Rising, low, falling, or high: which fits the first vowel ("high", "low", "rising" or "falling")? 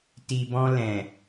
low